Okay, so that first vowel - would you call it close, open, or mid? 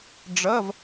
mid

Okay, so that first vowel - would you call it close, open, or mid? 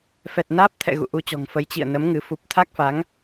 mid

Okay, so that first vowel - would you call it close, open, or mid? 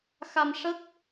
open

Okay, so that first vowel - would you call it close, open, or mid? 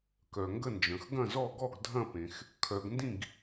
mid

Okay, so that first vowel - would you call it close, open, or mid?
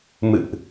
close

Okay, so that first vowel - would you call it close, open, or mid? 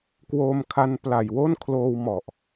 mid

